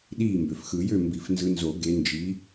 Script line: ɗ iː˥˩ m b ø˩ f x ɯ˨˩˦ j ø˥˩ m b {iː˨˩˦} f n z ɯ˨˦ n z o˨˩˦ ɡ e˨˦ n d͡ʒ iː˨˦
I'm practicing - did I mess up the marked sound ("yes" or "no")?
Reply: yes